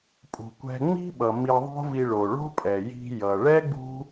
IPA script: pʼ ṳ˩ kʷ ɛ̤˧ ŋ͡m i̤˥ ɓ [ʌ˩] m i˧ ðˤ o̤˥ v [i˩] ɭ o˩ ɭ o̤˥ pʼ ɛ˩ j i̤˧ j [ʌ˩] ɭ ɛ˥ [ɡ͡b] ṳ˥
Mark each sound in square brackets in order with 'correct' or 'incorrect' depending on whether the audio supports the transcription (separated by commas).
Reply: correct, incorrect, correct, correct